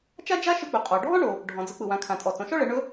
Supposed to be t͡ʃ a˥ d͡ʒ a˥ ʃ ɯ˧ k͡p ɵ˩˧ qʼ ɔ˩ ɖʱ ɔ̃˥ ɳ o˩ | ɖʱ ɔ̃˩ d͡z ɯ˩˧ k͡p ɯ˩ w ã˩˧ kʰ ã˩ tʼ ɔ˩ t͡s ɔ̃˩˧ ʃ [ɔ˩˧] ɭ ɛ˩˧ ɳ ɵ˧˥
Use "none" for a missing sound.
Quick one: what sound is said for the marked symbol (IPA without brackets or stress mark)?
ɔ˥